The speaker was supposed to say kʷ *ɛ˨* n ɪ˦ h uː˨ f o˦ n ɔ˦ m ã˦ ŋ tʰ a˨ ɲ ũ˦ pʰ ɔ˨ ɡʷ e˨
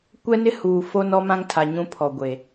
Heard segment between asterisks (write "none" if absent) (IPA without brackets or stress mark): ɛ˦